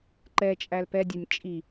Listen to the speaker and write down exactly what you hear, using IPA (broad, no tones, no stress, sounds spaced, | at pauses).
ǃ ɛ t͡ʃʼ æ l p ɛ dʲ a nʲ t͡ʃʼ i